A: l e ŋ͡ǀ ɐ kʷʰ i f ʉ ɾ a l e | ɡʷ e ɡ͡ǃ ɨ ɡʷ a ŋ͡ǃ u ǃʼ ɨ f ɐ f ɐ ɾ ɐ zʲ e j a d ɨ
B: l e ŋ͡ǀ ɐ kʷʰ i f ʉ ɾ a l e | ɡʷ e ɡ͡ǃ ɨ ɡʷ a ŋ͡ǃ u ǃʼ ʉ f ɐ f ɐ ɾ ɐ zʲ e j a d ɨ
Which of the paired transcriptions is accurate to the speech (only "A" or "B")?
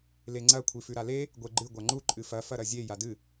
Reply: A